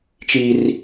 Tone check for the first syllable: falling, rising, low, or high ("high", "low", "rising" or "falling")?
high